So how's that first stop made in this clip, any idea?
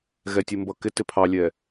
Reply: plain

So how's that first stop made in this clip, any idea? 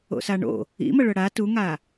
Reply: plain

